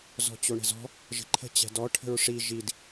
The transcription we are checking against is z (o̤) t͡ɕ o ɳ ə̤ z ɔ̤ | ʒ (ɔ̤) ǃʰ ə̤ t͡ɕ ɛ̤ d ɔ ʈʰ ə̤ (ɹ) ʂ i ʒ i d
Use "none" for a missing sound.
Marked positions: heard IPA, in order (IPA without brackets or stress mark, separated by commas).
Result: ɔ̤, ə̤, ɹ